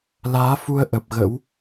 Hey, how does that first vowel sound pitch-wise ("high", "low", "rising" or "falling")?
rising